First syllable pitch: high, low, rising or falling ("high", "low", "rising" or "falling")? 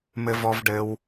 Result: high